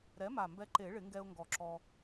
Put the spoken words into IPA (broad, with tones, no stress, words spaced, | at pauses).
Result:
ɾɛ˩˥ma˨˩ mbɛ˧ǃe˨˩˦ɭɪ˨˩˦ŋɡɛ˧ʊ̯ ŋɡɔ˨˩˦ǁɔ˧